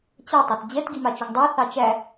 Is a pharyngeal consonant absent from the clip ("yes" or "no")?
yes